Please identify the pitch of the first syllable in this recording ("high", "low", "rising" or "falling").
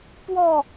falling